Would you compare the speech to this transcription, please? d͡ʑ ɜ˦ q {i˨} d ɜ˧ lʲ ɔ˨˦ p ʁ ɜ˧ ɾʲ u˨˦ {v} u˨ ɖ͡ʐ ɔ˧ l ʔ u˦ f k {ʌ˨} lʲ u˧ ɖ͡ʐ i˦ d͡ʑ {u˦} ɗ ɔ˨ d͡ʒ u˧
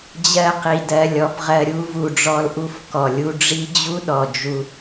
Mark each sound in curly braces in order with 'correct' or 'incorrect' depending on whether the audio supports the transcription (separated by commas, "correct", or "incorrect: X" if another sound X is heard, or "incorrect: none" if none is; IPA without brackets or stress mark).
correct, correct, incorrect: ɔ˨, correct